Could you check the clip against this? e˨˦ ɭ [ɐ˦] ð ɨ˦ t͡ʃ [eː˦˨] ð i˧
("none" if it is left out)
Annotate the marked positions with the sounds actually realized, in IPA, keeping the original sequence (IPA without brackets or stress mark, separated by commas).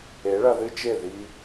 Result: ɐ˧, e˦˨